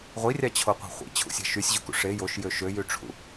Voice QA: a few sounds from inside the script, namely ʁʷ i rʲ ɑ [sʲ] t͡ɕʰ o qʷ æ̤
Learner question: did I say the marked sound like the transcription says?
no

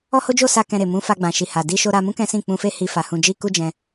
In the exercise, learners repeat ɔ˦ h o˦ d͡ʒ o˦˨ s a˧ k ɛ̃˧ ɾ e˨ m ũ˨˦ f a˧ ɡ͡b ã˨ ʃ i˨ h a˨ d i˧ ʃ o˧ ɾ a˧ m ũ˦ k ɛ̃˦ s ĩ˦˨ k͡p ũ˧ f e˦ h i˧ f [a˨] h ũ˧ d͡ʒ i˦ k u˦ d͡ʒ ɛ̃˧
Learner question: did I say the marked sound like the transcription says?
yes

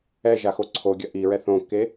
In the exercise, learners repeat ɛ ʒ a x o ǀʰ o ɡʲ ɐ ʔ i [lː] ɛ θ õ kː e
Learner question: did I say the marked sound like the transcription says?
no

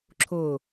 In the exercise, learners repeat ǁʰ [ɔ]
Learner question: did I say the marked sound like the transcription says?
no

